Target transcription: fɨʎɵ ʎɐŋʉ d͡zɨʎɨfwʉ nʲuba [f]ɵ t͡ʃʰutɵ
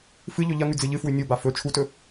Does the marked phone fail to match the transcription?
no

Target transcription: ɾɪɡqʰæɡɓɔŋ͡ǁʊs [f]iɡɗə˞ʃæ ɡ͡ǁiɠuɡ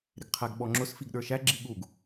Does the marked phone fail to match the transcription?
no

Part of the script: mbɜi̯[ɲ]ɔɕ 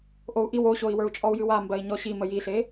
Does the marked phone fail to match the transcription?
no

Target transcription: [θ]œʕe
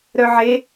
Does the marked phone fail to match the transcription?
yes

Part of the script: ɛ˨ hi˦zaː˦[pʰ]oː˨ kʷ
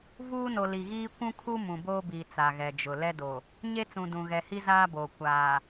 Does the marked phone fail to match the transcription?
yes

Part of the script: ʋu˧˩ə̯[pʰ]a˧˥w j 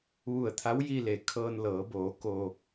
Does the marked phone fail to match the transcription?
yes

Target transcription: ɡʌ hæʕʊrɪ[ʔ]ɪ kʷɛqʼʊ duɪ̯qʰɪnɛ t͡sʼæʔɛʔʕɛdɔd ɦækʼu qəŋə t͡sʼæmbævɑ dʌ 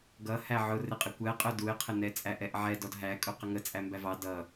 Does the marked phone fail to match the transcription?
yes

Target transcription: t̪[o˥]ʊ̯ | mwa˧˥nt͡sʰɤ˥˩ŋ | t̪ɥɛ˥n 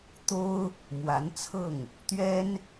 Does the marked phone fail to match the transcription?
no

